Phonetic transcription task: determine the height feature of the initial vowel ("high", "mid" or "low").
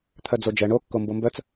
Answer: mid